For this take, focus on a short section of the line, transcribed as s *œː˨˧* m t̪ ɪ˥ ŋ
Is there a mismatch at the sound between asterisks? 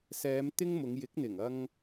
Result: yes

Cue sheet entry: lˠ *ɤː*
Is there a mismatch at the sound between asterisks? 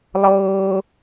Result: no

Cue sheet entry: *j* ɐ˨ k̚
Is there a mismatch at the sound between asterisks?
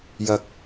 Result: no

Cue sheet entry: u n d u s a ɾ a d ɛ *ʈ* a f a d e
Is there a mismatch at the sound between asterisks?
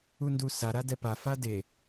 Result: yes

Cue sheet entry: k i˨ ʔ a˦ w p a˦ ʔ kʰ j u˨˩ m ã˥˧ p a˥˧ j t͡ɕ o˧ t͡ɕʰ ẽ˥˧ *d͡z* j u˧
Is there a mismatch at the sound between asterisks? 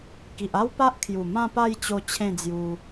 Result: no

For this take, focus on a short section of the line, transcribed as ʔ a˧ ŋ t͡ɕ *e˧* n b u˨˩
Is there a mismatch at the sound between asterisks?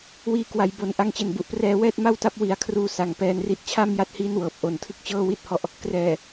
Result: yes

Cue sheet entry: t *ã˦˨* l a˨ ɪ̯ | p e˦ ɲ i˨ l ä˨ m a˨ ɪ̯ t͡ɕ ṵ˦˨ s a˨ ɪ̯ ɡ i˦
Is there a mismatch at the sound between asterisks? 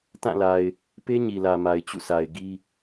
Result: no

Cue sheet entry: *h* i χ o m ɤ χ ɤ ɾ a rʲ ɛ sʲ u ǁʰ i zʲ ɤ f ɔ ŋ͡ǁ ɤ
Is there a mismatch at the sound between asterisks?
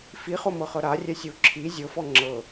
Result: yes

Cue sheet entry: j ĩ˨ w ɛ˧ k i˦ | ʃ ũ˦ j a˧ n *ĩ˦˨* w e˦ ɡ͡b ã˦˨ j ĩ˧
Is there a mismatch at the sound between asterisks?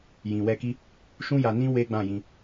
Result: yes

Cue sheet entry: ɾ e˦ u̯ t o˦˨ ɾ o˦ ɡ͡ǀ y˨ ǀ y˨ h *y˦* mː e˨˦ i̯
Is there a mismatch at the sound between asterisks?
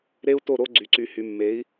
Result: yes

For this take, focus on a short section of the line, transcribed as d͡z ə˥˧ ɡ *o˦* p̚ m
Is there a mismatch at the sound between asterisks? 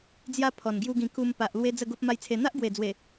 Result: no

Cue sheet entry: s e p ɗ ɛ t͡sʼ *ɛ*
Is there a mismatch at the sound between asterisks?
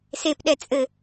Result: yes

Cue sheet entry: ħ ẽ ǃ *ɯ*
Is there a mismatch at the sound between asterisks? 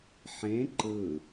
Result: no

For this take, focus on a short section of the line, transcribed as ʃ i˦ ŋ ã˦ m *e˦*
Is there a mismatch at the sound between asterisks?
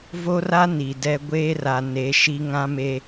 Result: no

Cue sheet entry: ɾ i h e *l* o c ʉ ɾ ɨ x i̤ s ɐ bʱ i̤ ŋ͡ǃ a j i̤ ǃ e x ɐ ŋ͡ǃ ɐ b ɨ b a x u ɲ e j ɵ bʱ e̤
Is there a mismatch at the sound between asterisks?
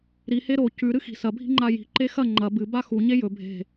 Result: yes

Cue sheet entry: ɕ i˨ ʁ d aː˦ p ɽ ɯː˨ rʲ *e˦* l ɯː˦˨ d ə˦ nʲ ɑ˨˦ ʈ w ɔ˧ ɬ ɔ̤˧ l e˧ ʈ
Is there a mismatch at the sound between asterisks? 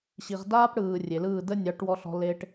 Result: yes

